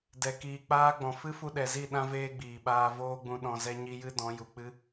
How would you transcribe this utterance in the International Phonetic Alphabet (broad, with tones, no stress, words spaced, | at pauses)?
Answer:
dɛ˨ kiː˨k͡paː˧ɡ͡bɔ̃˨ fɨ˦fu˧ ɗɛ˨zi˦˨ ɗã˦veː˦ɡ͡biː˨ɓaː˧ voː˦ɡ͡bũ˧ ɗɔ̃˧zɛ˦ɲi˦jɨ˦ dɔ̃˨˦ju˨k͡pɨ˦